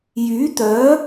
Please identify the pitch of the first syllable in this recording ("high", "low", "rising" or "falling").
rising